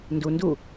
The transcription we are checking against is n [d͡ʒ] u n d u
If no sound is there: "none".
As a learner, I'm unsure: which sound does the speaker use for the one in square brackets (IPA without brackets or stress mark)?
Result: d